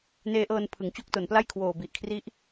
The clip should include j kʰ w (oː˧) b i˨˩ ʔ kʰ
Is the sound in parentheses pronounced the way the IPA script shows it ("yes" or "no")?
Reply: no